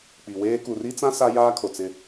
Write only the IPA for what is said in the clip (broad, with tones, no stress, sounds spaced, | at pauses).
k͡p i˨ w eː˦ k u˨ r i˦ t͡s ã˦ s a˦ j aː˦ kʰ o˨ t͡s ɪ˦˨